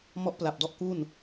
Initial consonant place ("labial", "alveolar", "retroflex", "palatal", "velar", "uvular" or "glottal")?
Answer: labial